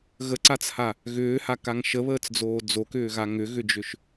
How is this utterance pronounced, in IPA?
ɣ ə ǀ a t͡s h a | ɣ ʏː h a k a ŋ ʃ ə β əː t͡s d͡z oː d͡z o k ʏː ɣ a ŋ ʏ ɣ ʏ d͡ʒ ʏ ʃ

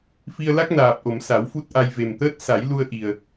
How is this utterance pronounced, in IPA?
f i˧ ə̯ l a˦˥ k̚ n aː˨˩ p̚ ʔ o˨˩˨ m s a˨˩˦ w f u˦˥ t̚ ʔ a˧ j v e˨˩ m t̪ əː˦˥ t̚ s a˨˩˦ j l u˧ ə̯ ʔ i˨˩ ə̯

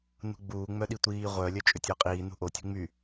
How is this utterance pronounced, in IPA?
n ṳ ɡ͡b uː ŋ͡m œ ɗ i tʷ iː ʁʷ œ lʲ œ t͡ʃʼ ʏ tʲ ʊː qʼ iː n ṳ ʔ o tʲ ṳ ŋ͡m y

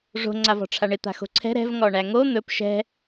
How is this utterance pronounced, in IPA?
ʐ o̤ ŋ͡ǀ a v ɔ̤ ʈ͡ʂʰ a ɳ ɪ t̪ a̤ x o̤ ǀʰ ɛ̤ ɾ ɛ̤ v ŋ ɔ ɳ æ ŋ o n̪ ɵ p ʃ ɛ̤

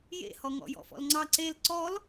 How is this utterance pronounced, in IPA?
j ḛ h ɔ ŋ ɔ̰ j ɔ̰ f ɔ̰ l ŋ͡ǀ ɑ ǀ e l ǀ ɔ l

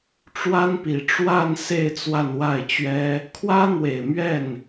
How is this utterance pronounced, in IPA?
ʈ͡ʂ w a˥ n p i˨˩ ʈ͡ʂ w a˥˧ n s e˥˧ ɪ̯ t͡s w a˥˧ n w a˥˩ ɪ̯ t͡ɕ ɥ ɛ˥ | kʰ w ä˥ n̪ w e˨˩ ɪ̯ m ɥ ɛ˥˩ n

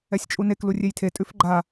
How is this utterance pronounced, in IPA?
ɛ sʲ t͡ʃʼ u n e k l u rʲ e j tʰ e tʼ ʉ f ɡ͡ǃ a

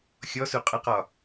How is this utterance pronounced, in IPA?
xʲ ɔ s u qʼ ə q ɒ

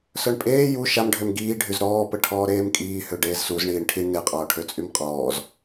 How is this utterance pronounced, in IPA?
s œ ɳ pʼ eː j u ʃ a m ɖʱ ø m ɡ iː ɖʱ y z ɾ ɔː p ə ʈʰ ɔː ɾ eː m kʼ iː h ø ɖ eː z s u z ɳ iː ɳ ʈʰ i ɳ n e qʼ ɔː ʈʰ ø t͡sʼ y m qʼ ɔː z

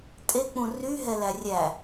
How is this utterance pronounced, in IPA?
tʼ e k͡p ũ r y ɦ ɛ l æ rʲ æ

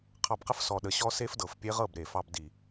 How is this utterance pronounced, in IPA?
qʰ ɑ˧ b q ə˦ f s ɔ˧ ɗ ə˧ ɕ ɔ˦ s e˦ f d ɤ˨ f pʲ e˦ ʁ ɤ˦˨ b ɾ e˨ f ɑ˧ b d i˨

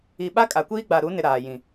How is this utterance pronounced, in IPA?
i˨ ɓ a˦ kʼ a˨ kʷ iː˦ ɡ͡b a˨ ɾ u˨˦ n ɪ˨ ɾ aː˨ j ĩ˨

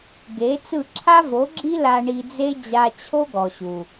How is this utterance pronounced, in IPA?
ɡ e˨˦ t͡s ɯ˦˨ ǁʰ a˦ v o˨˦ ɡ͡ǁ i˦ l a˧ ɳ i˧ d͡z e˦ d͡ʑ a˧ t͡ɕʰ o˦ ɡ ɔ˨ ɕ u˨

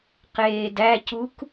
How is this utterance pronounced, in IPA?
q eː d æ c u k

